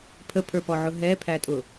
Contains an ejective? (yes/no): yes